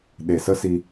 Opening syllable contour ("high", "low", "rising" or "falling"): low